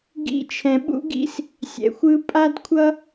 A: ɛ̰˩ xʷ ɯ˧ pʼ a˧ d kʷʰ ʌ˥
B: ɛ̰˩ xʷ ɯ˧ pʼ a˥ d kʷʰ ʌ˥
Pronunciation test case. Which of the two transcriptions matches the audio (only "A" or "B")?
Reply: B